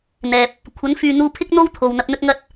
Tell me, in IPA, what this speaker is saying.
n̪ ɛː˨ p̚ | kʷʰ ɐ˨˥ n f yː˨ n̪ uː˧ pʰ ɪ˥ k̚ n̪ o˥ w t̪ʰ o˨ w n̪ ɐ˧ p̚ n̪ ɵ˥ t̚ ŋ ɐ˥ t̚

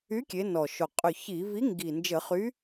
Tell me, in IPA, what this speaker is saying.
y˨˥ kʲ e˨˥ n ɔ˨˩ ʃ o˨˩ qʼ ʏ˨˩ ç i˧˩˧ v i˨˥ ŋ ɡ i˨˩ n d͡ʒ ə˧˩˧ χ y˨˥

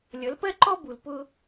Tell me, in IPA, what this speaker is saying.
lʲ ʌ˨˦ l p ɜ˦ ǃ ɔ˦ b u˨ l p ʊ˦

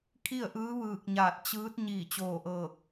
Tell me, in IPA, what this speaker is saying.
kʰ i˥˨ ə̯ ʔ ɯː˧˥ ʋ ɯː˧˩ k̚ ɲ aː˧˩ t̚ t͡ɕ ɯː˧˥ t̚ ɲ iː˧˩ t͡ɕ oː˧˩ ʔ ɤː˧˩ k̚

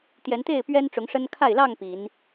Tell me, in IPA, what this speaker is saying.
t̪ j ɛ˨˦ n t̪ e˥˨ ɪ̯ p ɥ ɛ˦ n ʈ͡ʂ ʊ˨˦ ŋ ʂ ə˦ n kʰ a˥˨ ɪ̯ l ɑ˥˨ ŋ p i˨˦ n

